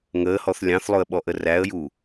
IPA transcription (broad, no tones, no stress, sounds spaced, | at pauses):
ŋ əː h ɔ θ lʲ ɑ̃ θ lˠ ʊ ə̯ ɓ ɔ ʔ ə r æ ə̯ j u